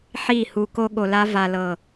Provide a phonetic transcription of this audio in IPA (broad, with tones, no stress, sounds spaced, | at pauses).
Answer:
ħ i˦˨ h u˧ k o˧ ɠ o˨ l a˧ v a˨ l ɤ˨